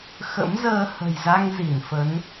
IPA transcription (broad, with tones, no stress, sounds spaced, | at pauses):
x ə̰˧˥ m z əː˧ h ə̤˨˩ j z a˧ ŋ z i˧˩ n f ə˨˦ n